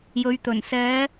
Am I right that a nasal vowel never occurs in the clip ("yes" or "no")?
yes